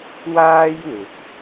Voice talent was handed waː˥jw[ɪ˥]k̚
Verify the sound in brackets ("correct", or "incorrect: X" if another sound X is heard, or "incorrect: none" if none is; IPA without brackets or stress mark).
incorrect: ɪ˨˥